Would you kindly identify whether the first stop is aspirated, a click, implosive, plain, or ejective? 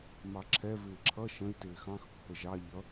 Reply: click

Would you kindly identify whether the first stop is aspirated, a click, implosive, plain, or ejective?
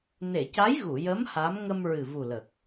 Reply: plain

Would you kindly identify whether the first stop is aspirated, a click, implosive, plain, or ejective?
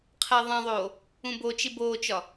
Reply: aspirated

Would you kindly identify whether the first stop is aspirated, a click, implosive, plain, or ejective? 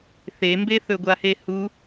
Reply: plain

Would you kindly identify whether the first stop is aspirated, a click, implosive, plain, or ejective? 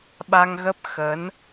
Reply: implosive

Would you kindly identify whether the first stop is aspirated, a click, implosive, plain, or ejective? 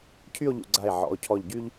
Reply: aspirated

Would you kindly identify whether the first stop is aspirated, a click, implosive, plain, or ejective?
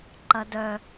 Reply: click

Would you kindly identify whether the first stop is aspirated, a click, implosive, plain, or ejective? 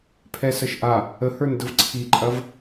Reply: aspirated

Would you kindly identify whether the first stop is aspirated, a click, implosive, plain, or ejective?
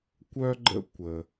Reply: plain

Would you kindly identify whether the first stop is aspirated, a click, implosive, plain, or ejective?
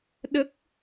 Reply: implosive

